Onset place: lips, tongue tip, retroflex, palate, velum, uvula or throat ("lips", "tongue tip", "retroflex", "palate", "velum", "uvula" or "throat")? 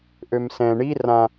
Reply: throat